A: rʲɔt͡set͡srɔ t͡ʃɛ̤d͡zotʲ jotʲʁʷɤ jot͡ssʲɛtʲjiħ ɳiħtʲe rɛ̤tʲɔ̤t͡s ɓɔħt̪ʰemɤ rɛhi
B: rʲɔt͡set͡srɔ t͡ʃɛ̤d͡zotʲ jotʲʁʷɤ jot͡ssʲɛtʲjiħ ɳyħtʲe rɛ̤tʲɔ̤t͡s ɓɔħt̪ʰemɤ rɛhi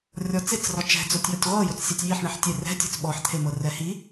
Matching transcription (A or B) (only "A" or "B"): A